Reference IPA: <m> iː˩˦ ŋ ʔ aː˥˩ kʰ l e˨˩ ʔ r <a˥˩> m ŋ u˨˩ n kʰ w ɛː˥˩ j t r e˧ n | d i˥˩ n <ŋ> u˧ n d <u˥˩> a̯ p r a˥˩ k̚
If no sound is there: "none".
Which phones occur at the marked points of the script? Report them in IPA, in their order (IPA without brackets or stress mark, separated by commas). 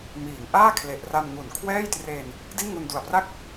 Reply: m, a˧, ŋ, u˨˩